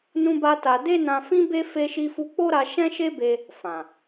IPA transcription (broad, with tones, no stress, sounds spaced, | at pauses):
n ũ˦ b a˦ t a˧ d e˦ n ã˧ f ĩ˦ b e˦ f e˦ ʃ i˦ f u˦ k͡p o˦ ɾ a˧ ʃ ɛ̃˦ ʃ e˦ b e˧ | f ã˨